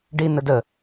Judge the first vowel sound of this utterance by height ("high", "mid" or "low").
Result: high